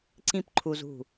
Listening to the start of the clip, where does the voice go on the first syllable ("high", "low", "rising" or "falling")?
high